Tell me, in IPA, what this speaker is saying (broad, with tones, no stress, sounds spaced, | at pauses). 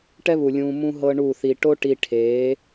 ʈ ɛ˦ β u˨ lʲ ũː˧ m ũ˧ ɦ ɤ˦ ɳ u˦˨ θ i˧ ʈ o˦ ʈ i˧ ʈʰ eː˨˦